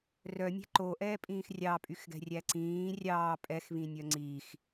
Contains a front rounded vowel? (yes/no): yes